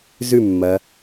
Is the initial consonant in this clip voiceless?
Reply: no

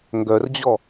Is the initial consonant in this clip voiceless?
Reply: no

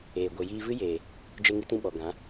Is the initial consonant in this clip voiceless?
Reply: no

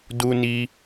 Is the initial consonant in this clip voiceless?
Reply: no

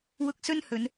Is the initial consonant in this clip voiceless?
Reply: no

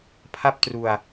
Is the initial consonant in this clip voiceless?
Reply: yes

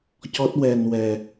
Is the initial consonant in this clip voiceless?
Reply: yes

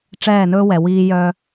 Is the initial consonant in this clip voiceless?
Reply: yes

